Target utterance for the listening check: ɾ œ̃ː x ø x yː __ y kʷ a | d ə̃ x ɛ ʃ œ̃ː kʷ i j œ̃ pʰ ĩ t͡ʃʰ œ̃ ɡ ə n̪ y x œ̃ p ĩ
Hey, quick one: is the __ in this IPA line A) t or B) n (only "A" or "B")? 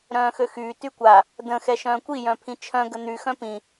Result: A